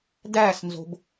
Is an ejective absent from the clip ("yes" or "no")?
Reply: yes